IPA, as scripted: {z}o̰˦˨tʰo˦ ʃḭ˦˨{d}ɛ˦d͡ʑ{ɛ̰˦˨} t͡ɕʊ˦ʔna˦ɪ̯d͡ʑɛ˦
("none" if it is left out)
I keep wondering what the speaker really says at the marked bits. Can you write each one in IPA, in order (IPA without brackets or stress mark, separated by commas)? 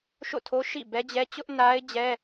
ʃ, b, ɛ˦